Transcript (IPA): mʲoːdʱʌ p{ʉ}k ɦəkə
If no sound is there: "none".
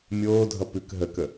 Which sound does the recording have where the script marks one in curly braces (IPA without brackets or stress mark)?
ʉ